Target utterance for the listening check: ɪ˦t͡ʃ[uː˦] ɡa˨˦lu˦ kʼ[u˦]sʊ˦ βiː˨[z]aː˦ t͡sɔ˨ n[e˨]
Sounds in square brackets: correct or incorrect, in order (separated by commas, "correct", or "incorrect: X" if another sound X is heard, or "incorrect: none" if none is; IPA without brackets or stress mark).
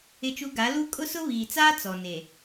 incorrect: u˦, incorrect: ʊ˦, incorrect: t͡s, correct